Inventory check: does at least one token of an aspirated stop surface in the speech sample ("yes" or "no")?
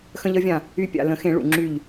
no